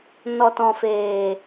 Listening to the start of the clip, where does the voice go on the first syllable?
low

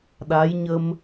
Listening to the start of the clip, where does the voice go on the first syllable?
rising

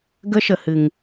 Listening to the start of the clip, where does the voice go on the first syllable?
high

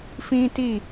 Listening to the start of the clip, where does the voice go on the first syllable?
high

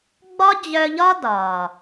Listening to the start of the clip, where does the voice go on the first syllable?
high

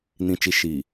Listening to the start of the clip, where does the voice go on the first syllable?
low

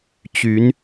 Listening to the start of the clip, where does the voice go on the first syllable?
rising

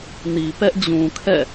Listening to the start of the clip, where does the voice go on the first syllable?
low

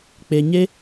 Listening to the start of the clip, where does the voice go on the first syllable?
high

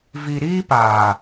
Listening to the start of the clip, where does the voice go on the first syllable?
low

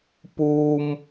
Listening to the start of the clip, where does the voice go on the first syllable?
high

